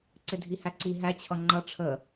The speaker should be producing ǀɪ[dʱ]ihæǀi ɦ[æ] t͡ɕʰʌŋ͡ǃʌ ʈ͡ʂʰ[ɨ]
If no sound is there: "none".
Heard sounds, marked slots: dʱ, æ, ə

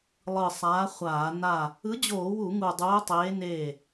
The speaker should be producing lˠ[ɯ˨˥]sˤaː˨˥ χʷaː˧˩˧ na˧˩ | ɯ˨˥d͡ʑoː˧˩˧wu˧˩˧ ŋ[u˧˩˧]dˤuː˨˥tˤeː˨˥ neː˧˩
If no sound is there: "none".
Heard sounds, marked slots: ɯ˧˩, u˧˩

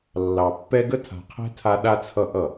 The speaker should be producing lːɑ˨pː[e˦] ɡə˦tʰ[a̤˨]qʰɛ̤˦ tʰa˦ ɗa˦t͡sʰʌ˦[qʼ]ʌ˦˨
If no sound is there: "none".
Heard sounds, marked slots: ɛ˦, a̤˨, ʔ

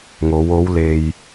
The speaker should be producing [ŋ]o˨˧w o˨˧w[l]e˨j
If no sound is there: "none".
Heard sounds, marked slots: ŋ, l

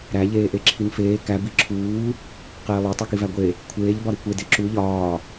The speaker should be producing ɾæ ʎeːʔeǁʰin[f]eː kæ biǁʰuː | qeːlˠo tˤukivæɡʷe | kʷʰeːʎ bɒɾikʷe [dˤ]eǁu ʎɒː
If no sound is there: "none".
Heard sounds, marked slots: f, d

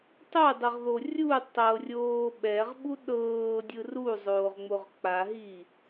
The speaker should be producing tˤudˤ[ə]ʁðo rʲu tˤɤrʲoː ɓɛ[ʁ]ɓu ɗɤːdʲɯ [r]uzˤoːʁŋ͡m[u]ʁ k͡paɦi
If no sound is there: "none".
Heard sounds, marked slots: ɯ, ʁ, r, o

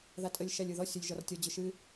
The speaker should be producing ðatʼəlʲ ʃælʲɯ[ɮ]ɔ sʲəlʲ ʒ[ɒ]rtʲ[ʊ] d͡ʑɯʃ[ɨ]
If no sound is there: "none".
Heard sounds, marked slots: ð, ɒ, ɔ, ɨ

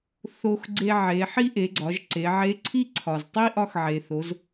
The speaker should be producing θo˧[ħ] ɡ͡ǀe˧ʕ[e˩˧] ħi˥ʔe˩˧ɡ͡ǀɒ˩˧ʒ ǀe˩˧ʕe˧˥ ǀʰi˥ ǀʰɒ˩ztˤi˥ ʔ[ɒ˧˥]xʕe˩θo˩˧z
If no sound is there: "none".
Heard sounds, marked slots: x, e˩˧, ɒ˧

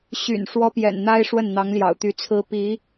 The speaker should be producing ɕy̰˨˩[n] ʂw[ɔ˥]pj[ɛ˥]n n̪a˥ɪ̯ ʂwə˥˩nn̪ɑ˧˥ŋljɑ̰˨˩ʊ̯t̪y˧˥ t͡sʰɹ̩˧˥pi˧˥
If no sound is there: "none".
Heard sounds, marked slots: n, ɔ˥, ɛ̰˨˩

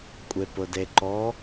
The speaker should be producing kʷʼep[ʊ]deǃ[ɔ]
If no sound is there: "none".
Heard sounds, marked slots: ʊ, ɔ

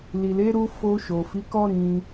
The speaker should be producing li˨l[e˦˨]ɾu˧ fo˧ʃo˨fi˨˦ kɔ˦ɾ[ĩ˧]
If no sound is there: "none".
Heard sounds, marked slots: e˨˦, ĩ˧

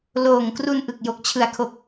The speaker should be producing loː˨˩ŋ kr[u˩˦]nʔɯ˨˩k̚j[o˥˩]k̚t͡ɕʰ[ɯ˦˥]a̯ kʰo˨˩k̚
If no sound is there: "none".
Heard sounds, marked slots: u˧, o˨˩, ɯ˨˩

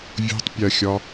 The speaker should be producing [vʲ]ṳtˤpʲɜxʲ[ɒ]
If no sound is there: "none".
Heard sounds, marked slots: vʲ, ɒ

